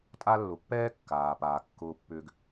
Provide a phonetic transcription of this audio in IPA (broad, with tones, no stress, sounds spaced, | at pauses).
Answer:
tʼ a˦ lː ʊ˨ pː ɛː˥ kː aː˩ p aː˩ kː ʊː˨ pː ʏː˨ ɡ